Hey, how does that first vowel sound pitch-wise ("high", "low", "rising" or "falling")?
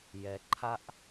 low